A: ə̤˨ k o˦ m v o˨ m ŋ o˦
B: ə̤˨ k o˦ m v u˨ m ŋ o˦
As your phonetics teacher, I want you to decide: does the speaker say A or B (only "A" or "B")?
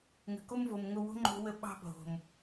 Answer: A